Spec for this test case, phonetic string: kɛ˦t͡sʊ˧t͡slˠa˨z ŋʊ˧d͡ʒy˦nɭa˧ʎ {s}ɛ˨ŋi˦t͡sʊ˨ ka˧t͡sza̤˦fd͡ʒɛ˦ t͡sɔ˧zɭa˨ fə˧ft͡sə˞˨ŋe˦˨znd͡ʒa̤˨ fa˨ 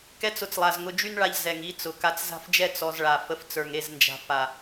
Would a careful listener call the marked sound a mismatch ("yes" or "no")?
yes